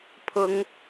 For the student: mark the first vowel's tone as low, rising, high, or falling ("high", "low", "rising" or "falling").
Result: rising